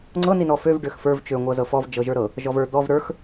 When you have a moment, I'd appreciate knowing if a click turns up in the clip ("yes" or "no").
yes